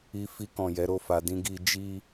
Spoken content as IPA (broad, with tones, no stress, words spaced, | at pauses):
i˧fi˧kɔ̃˨ jɛ˨˦ɾo˦˨fa˧ dĩ˧ɡi˧ d͡ʒi˦